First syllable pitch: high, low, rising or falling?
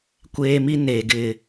high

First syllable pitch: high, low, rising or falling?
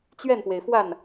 falling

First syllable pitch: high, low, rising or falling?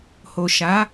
low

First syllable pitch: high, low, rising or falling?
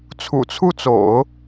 low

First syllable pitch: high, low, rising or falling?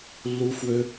high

